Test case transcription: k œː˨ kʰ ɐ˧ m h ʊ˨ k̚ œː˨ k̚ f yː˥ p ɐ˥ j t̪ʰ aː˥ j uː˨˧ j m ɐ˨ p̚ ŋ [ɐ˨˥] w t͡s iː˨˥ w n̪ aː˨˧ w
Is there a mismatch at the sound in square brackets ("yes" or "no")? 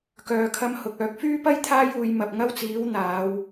yes